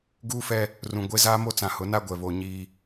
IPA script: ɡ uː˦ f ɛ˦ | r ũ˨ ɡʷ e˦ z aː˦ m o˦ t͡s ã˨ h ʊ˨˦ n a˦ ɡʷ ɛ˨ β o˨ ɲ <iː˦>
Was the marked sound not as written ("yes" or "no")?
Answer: no